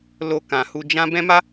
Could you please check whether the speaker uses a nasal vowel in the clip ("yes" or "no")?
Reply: yes